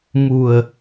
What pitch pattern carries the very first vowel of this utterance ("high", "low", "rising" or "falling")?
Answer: low